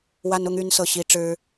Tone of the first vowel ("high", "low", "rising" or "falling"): high